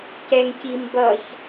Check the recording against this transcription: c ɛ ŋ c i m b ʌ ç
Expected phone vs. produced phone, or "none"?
none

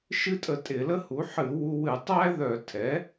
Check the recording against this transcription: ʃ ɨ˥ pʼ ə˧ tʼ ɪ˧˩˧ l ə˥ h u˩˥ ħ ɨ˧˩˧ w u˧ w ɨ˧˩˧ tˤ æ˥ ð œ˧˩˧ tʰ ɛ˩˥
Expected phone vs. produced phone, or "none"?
pʼ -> tʼ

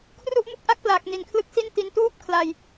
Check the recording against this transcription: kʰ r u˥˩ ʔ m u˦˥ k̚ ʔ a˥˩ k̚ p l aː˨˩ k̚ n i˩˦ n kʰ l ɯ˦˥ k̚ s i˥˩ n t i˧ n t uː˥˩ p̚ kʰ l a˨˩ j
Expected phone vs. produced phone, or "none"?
none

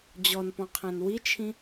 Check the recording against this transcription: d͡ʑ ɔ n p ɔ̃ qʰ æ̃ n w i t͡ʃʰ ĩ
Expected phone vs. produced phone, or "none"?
none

